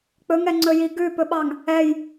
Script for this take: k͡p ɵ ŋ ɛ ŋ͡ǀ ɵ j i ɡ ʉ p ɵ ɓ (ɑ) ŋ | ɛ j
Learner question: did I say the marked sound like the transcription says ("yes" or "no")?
yes